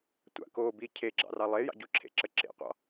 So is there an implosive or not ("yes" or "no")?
no